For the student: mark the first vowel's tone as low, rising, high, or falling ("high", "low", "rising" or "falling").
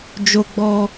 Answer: high